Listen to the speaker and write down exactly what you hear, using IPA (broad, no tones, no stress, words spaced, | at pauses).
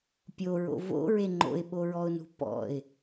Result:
pʲo ɹo̰vo̰ɹe ŋ͡ǃo̰ɪ̯ɓo ɹɔʊ̯nṳpɔ̰ɪ̯